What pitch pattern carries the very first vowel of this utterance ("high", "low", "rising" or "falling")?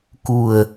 low